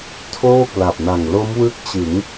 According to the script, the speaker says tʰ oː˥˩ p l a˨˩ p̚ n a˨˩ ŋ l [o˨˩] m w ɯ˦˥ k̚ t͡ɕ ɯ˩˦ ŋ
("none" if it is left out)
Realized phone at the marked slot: o˦˥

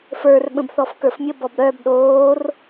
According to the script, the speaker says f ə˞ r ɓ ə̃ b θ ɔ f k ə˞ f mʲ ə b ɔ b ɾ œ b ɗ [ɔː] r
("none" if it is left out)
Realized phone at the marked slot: oː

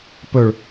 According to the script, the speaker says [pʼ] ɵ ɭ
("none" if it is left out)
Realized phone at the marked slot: p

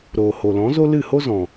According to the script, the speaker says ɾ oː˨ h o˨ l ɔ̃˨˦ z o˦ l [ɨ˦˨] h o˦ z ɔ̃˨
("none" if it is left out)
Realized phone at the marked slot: ɨ˦˨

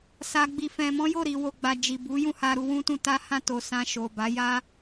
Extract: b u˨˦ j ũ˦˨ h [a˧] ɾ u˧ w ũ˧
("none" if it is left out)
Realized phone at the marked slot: a˧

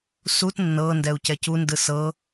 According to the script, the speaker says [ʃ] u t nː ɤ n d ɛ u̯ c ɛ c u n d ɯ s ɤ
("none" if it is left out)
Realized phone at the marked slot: s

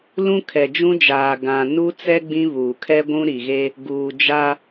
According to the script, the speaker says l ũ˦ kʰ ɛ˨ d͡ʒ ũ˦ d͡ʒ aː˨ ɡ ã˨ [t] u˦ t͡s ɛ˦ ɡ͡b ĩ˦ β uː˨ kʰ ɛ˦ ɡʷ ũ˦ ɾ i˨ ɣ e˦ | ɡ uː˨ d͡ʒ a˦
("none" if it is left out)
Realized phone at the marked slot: n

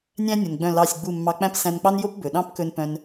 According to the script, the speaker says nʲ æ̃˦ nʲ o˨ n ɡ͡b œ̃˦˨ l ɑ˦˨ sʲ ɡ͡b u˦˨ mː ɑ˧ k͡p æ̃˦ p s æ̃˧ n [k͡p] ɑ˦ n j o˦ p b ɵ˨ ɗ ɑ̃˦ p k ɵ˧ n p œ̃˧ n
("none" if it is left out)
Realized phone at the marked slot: k͡p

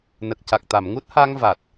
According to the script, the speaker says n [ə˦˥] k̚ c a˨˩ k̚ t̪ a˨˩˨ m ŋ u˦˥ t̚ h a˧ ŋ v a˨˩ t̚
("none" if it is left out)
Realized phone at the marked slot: ə˨˩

